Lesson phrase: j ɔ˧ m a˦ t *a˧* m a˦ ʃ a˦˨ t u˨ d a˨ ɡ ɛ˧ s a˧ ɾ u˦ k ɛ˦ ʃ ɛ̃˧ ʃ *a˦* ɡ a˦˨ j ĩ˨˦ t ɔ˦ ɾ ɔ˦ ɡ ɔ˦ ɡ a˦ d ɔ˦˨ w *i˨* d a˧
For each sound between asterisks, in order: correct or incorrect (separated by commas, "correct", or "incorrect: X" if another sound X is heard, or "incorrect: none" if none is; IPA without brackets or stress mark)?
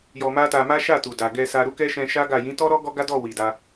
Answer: correct, correct, correct